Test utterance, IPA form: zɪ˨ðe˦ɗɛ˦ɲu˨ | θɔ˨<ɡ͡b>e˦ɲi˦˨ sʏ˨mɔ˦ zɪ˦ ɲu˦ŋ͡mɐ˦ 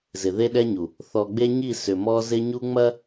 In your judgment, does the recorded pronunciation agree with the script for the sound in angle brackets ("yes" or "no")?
yes